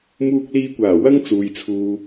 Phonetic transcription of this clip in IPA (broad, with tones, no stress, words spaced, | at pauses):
muː˧k̚liː˧kʷaː˨˩ wɐ˥ŋt͡suː˨jt͡sʰuː˧